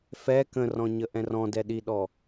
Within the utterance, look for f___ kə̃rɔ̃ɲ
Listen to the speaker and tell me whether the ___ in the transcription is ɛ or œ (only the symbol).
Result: ɛ